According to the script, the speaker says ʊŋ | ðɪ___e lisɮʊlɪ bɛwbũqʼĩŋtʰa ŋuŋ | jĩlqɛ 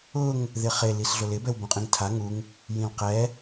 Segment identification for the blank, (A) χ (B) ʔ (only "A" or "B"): A